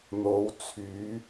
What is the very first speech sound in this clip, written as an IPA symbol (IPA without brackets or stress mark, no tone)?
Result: n̪